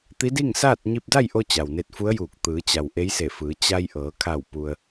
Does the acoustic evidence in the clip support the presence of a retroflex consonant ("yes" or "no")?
no